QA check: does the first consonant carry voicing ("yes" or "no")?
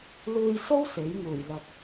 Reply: yes